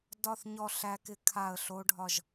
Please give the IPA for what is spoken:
d ɒ˥˧ θ ɲ ɔ˥˧ ɬ æ˦˥ k ɪ˦˥ kʰ a˥˧ ə̯ ɬ o˦˥ ɖʱ ɒ˥˧ ʒ

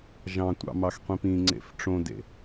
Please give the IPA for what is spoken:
ʒ ɑ̃ tʷ ɑ̰ m ɑ x qʷ ĩ p ĩ ŋ͡ǀ ḛ f ʈ͡ʂ õ d ḛ

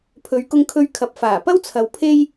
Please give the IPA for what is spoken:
pʰ ɵ˨˧ ɥ k ʊ˧ ŋ kʰ ɵ˧ ɥ kʰ ɐ˨ p̚ f aː˨˩ p ɐ˥ w t͡sʰ ɐ˨ w pʰ e˥ j

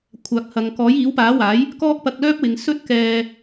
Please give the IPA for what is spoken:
kʷʰ aː˨ k̚ h ɐ˨ ŋ k ɔː˨˥ j iː˨˥ w p aː˨˥ w aː˨˥ j | k ɔː˥ k̚ p ɐ˧ k̚ l œː˥ p̚ w ɪ˨˧ ŋ s ɵ˥ t̚ k ɛː˧

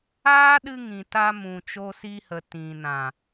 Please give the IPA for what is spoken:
aː˦ ɗ ɨ˧ ŋ ĩ˨ t a˧ m ũ˨ t͡ʃ o˧ s i˧ h ə˨ t ĩ˨ n ã˨

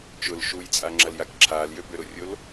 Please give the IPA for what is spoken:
t͡ʃ ʊ l ʃ u j t͡sʼ a ŋ͡ǁ ɐ l j a k ǁʰ aː l j ø b ø ɾ ʊ rʲ o l

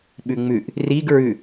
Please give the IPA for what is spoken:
ɓ ʉ ŋ͡m ʉ ʔ | r i ɡ ɹ ʉ

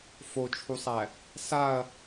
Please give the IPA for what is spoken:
f o t͡ʃʰ u sˤ æ | s a ɐ̯

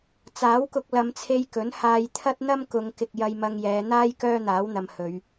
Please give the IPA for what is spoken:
t͡s aː˨˥ w k ʊ˧ k̚ l ɐ˨˧ m t͡sʰ e˧ j k ɵ˨˥ n h aː˧ j t̪ʰ ɐ˥ t̚ n̪ ɐ˥ m k ʊ˨˧ ŋ k ɪ˨ k̚ j ɐ˧ j m ɐ˧ ŋ j ɛː˨˧ n̪ aː˥ j k œː˥ n̪ aː˨˥ w n̪ ɐ˨ m h ɵ˨˧ ɥ

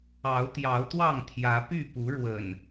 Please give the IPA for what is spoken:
ɑ˨˦ ʊ̯ t̪ j ɑ˨˦ ʊ̯ t̪ w ɑ˥˨ ŋ t̪ʰ j ä˨˦ p y˥˨ p u˨˦ ɻ w ə̰˨˩ n

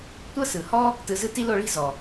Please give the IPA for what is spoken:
tʷ ɤ˥ s ɯ˩ h ɔ˥ | t ɯ˧ z ɯ˥ t i˥ l o˧ ɭ i̤˥ z ɔ˩

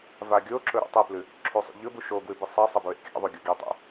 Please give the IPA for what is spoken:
v a ɡʲ o ǁ ɵ ɾ ṵ tˤ e p l ʉ | ǁʰ u sˤ ṵ ʎ ɵ b u ʃ o ɡ w ʉ b ɨ sˤ ɐ sˤ ɐ b ɹ ḛ kʲ a̰ ðˤ u ɡʲ o ɡ i tˤ ṵ

